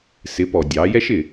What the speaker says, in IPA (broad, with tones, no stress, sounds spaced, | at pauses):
s ɪ˨˦ p ɔ˨ dʲ ɑ˨˦ j ɛ˦ ʃ ɪ˨